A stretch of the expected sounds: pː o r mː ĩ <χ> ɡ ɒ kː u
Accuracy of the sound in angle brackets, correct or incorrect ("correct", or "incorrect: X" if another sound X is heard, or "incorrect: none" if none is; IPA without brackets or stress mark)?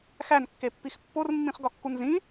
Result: correct